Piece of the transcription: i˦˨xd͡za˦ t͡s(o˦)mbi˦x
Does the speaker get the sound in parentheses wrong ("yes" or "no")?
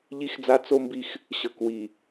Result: no